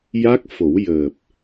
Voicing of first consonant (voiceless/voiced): voiced